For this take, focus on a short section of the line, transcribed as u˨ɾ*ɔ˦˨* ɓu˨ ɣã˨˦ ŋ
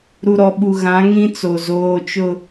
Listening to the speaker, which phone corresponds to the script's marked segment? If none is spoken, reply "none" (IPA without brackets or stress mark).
ɔ˨